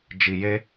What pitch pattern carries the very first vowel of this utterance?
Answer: low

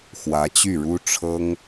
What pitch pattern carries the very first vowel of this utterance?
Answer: rising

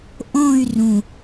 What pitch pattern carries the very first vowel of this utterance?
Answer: falling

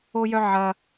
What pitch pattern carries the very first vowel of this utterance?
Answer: high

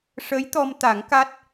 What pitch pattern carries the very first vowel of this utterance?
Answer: rising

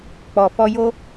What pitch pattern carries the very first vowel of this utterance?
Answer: low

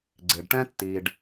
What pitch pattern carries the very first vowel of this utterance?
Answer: low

